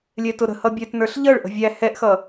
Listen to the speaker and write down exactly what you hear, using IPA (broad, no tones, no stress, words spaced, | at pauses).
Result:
lʲɛtʊɾə̤ hʌbʲɛtnə˞ɬ ʎʌɭ ʔə̤vʲæ hɛʔxʌ